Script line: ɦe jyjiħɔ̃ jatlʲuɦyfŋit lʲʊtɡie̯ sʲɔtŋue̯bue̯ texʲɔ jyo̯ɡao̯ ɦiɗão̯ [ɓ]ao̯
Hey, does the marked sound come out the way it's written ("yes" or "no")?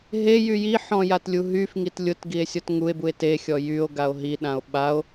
yes